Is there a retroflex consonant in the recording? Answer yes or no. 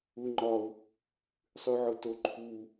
no